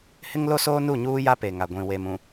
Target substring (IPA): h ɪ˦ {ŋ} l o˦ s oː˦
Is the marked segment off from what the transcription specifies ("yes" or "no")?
no